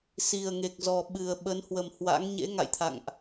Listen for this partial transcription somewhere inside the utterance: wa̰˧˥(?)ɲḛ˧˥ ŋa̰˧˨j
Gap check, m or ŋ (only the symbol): ŋ